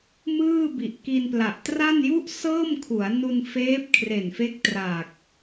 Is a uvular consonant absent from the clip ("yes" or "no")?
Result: yes